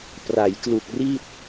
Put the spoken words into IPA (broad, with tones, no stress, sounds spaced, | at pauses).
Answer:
p r a˩˦ j k l u˨˩ k̚ r i˥˩ t̚